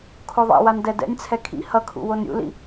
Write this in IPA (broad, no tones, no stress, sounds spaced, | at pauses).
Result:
kʰ o ðˤ ɛ̰ w a n d ɛ d ɛ̰ nʲ t͡sʰ ɛ kʰ ḭ h ʌ kʰ ṵ w o n ɾʲ ṵ l ḭ